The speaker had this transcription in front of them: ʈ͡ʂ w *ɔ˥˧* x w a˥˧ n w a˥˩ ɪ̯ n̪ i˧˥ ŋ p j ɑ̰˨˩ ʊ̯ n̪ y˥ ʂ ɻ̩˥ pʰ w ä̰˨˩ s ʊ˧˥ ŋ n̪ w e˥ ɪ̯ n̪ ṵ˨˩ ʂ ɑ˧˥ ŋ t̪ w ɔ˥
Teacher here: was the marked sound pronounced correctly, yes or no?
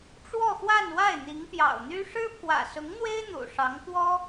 yes